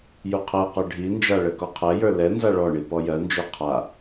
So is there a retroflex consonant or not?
yes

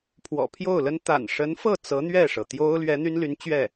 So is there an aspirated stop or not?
yes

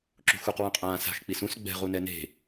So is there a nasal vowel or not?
yes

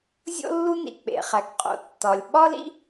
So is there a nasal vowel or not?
no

